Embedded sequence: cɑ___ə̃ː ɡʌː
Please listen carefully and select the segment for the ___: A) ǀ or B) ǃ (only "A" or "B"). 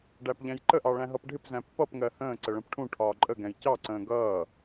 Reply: A